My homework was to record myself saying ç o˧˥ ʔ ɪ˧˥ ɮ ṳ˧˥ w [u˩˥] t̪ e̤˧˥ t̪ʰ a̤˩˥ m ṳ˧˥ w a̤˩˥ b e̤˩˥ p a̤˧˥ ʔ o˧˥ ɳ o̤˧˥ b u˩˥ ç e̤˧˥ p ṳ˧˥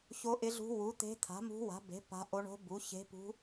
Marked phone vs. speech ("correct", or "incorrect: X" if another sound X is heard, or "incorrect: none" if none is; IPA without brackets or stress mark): correct